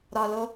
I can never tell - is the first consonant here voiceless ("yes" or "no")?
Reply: no